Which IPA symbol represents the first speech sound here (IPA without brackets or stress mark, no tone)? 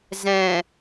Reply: z